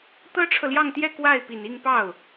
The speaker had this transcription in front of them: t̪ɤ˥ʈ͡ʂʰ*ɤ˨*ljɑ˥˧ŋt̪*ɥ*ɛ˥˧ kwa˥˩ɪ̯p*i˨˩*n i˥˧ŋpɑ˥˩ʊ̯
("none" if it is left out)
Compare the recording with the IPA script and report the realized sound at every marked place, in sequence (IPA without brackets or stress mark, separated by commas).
ɤ˨, j, i˨˩